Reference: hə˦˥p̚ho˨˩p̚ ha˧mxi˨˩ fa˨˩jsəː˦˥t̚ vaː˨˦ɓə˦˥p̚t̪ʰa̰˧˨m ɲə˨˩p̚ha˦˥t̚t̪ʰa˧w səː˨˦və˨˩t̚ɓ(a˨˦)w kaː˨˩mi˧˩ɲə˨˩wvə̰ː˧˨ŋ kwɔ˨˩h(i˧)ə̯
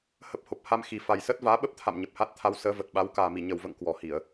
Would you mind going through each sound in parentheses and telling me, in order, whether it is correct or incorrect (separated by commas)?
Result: correct, incorrect